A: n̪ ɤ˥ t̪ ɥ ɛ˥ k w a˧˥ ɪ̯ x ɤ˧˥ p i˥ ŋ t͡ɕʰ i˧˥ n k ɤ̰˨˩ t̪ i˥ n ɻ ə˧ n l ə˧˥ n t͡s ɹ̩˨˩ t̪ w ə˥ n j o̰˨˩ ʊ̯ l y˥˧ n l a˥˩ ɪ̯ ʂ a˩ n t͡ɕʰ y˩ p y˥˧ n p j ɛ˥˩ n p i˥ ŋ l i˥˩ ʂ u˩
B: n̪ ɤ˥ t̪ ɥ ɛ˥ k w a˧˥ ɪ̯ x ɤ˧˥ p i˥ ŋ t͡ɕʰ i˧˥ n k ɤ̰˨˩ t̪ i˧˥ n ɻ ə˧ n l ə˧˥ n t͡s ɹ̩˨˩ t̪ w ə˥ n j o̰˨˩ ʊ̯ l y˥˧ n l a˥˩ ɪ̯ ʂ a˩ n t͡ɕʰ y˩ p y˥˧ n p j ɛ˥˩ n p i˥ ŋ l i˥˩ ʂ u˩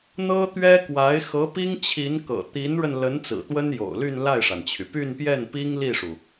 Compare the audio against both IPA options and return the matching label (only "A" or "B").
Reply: B